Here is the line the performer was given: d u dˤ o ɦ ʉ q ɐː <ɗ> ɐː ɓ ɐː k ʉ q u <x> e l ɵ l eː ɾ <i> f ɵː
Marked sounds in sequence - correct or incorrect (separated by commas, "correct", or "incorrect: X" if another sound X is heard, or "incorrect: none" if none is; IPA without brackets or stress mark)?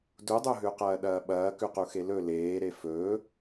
correct, correct, incorrect: e